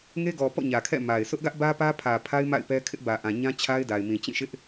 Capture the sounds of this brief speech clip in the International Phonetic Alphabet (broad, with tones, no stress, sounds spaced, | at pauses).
ŋ e˦ ɡ ɔ˨ p ɔ̰˦˨ ɲ ä˨ kʰ ɛ̰˦˨ m a˨ ɪ̯ s ʊ˦ ʔ ɡ ä˦ ʔ b ä˦ p ä˦ pʰ ä˨ pʰ a˦ ɪ̯ m a̰˦˨ ɪ̯ p ɛ˦ kʰ ɪ˦ ʔ b ä˨ ʔ ã˨ ɲ ã˦ t͡ɕʰ a˦ ɪ̯ d a˨ ɪ̯ m ĩ˨ t͡ɕ ĩ˦˨ ʃ ɪ˦ ʔ